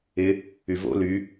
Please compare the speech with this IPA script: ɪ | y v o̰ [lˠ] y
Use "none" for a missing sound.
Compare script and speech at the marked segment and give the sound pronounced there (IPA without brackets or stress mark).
l